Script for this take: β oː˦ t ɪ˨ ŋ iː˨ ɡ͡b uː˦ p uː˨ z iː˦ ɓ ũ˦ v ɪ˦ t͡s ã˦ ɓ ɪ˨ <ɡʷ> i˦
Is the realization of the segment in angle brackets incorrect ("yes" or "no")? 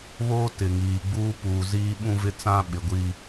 no